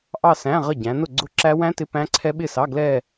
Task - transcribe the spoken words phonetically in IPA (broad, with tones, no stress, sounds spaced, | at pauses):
ʔ ɑ˥˧ s æ̃˧˥˧ ʁ ə˥˩ ɟ æ̃˨˦ n ʊ˥˩ ɡ͡ǀ ʊ˦˥ ǁ æ˦˥ w æ̃˦˥ t ɪ˧˥˧ p æ̃˦˥ ǀʰ ɛ˦˥ ɓ ɪ˥˩ s ɑ˧˥˧ ɡ l ɛ˥˧